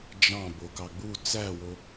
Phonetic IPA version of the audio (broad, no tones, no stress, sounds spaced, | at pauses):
d͡ʒ ɑ̃ b o k ɑ ɡ͡b u t͡s æ w o